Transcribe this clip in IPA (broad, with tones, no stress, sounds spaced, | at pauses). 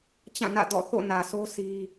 t͡ɕ ã˦˨ n ä̰˦˨ d ɔ̰˦˨ θ o̰˦˨ n ä˨ s o˦ sʰ i˦